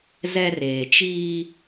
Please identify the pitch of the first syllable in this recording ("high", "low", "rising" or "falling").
high